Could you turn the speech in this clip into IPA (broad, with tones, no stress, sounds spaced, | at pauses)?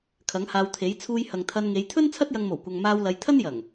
kʰ ɐ˨˥ ŋ h aː˧ w t̪ʰ e˨˥ j t͡sʰ uː˧ j h ɐ˨ ŋ t̪ʰ ɐ˧ n ŋ e˨˧ j t̪ʰ ɵ˥ n t͡sʰ ɐ˥ t̚ j ɐ˧ ŋ m o˨˩ w kʷ ɐ˨ ŋ m aː˧ w l ɐ˨˧ j t̪ʰ ɐ˥ n j ɐ˨˩ ŋ